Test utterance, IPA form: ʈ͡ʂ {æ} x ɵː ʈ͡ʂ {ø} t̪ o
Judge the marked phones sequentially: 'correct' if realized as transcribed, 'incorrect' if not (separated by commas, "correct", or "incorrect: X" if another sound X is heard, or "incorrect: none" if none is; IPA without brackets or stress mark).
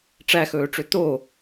correct, correct